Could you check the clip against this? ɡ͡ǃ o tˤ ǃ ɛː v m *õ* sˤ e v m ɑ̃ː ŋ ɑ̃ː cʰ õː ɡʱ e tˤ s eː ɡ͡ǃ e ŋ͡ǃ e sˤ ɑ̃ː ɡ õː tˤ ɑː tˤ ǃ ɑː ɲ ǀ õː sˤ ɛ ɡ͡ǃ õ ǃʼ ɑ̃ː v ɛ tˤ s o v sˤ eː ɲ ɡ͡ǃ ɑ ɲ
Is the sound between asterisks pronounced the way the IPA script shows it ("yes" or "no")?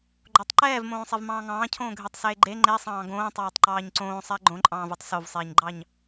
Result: no